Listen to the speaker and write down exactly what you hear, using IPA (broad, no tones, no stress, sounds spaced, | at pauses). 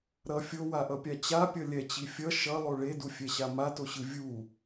ɾ ʌ fʲ o w a ʔ ʌ pʲ a t͡ɕ a pʲ ʌ lʲ ɛ t͡ɕ i fʲ ʌ ʃ ʌ lˠ o ɭ e d u fʲ ɛ ɕ a m a t o ɕ ɯ vʲ u